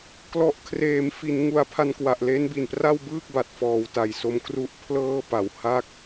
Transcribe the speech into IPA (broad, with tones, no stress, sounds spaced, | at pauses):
k l ɔ˨˩ ʔ kʰ r eː˩˦ m f i˩˦ n ŋ u˧ a̯ pʰ a˧ n k w a˨˩ ʔ l e˦˥ n b i˨˩ n p r a˥˩ w b ɯː˥˩ k̚ b a˨˩ t̚ f ɔː˨˩ w t a˨˩ j s o˦˥ m k r u˦˥ ʔ pʰ l ɤː˥˩ p a˨˩ w h a˥˩ k̚